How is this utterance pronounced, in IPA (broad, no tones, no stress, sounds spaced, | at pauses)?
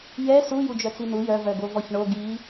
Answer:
j ɛ s u j u d͡ʒ œ t͡s i n u j œ v œ ɡ o v ɔ ç ɳ o ɡ i